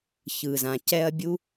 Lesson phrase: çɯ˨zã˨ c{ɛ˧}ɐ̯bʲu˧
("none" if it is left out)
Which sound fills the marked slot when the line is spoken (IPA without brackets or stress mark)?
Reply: ɛ˧